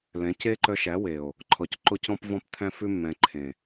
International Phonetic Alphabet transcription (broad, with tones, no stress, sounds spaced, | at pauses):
l ɛ̃˨˦ c e˦ ǃ œ˧ ʃ æ˨˦ w e˨ o̯ | ǃʰ ɔ˨ c ǃ o˧ c ɔ̃˧ p v ɔ̃˧ p t̪ʰ æ̃˧ f ʉ˧ mː ɛ̃˨ ǃʰ ẽ˨